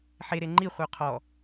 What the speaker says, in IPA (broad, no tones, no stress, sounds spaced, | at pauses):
ħ e ɾ e ŋ͡ǃ i χʷ œ qʰ ɔ